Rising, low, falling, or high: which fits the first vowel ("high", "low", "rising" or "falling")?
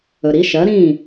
low